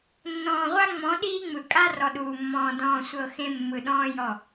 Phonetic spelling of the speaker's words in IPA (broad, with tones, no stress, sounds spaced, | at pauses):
nː ɔ̃ː˨ ʁʷ a˦ ŋ͡m ɔ̃˨˦ ɗ iː˦ ŋ͡m ɯ˨ kʼ a˦ r ɔ˨ ɗ uː˨ mː ɔ̃ː˨ d ɔ̃ː˨ sʷ ɤ˨ x ẽ˦ mː ɯ˨ ɗ ɔ̃ː˦ j ɔ˦˨